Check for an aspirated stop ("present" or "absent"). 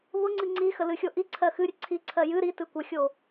present